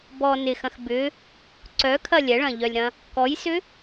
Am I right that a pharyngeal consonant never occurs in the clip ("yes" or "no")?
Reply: yes